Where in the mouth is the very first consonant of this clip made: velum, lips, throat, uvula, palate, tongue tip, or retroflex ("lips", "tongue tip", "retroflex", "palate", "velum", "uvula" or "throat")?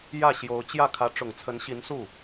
palate